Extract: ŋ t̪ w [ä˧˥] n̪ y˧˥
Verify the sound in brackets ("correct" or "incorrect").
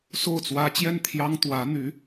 correct